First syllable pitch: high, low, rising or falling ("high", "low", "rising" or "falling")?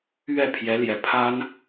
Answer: falling